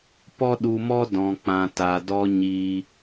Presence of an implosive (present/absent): present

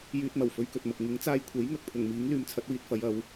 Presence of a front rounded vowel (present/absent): present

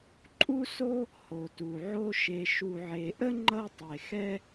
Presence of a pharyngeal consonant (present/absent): present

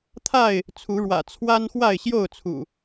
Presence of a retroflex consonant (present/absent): present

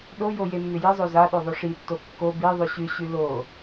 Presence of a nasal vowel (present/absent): absent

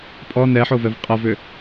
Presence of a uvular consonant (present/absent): present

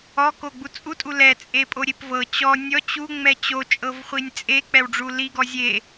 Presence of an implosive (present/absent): absent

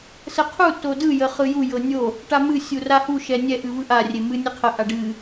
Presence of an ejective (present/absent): absent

